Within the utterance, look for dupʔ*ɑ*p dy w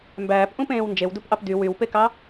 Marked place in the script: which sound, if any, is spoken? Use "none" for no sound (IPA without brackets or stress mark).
ɑ